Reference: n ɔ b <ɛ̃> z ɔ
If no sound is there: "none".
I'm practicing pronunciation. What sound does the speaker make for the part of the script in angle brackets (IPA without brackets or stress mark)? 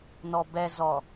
ɛ